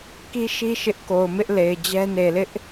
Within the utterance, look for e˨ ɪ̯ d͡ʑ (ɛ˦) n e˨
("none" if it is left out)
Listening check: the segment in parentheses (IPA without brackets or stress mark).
ɛ˦